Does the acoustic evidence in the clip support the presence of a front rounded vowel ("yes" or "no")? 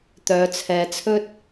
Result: yes